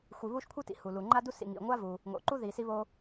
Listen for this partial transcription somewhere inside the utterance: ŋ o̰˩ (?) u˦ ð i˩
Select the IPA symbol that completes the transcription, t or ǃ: ǃ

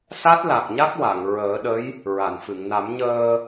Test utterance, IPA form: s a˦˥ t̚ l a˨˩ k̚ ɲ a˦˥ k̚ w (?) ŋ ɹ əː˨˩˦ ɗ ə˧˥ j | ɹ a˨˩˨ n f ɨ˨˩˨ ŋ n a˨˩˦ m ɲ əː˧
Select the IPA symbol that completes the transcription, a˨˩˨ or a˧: a˨˩˨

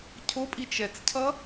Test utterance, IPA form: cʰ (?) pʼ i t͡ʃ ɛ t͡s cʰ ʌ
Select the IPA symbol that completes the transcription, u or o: o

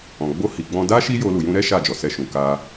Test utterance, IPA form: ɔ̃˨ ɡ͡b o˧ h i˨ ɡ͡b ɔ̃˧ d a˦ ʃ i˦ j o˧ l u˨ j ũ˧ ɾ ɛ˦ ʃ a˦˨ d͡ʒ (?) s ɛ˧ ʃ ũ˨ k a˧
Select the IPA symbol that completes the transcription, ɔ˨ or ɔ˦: ɔ˨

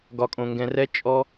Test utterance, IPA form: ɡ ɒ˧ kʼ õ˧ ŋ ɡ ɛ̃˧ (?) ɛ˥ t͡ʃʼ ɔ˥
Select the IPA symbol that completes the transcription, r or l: r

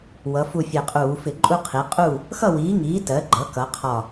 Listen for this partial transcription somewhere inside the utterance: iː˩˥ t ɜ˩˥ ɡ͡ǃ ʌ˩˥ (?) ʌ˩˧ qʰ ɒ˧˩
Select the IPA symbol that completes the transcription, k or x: k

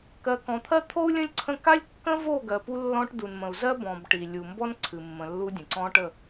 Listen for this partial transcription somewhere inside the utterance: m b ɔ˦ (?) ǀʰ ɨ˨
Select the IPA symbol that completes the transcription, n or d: n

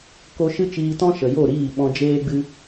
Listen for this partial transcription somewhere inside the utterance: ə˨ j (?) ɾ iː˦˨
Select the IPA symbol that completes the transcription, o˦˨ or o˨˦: o˦˨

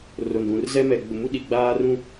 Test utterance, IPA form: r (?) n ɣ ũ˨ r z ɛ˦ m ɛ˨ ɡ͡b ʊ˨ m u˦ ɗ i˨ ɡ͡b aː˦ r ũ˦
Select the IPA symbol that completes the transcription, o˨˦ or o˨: o˨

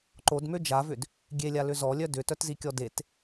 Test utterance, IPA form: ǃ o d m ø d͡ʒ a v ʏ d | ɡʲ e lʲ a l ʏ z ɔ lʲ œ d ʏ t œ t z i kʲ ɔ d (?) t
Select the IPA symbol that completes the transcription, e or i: e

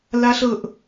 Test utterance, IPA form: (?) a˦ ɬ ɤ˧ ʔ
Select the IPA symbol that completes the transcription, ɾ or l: l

